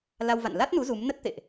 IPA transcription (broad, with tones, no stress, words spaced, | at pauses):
la˧wva̰˧˨n la˦˥t̚nu˨˦ zu˨˦m nə˦˥t̚t̪ḛ˧˨ʔ